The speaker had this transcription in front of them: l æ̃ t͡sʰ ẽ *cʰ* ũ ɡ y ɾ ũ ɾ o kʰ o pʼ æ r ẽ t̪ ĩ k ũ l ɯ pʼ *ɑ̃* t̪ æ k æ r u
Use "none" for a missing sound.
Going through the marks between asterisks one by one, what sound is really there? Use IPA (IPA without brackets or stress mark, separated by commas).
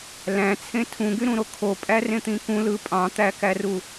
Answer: tʰ, ɑ̃